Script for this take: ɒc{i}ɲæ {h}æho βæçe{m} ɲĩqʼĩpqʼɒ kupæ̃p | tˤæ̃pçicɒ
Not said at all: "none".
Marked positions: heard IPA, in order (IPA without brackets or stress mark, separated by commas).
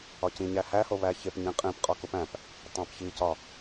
ĩ, h, p